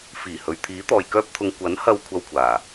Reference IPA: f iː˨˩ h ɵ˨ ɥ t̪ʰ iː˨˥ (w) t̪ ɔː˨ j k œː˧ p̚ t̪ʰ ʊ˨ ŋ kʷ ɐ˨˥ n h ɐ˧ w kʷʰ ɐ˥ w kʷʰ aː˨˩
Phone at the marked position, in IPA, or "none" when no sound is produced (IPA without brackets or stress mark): none